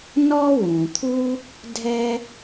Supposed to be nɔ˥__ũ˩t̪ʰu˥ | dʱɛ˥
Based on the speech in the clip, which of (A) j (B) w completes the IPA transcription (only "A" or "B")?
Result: B